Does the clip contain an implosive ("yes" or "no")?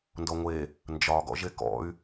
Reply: no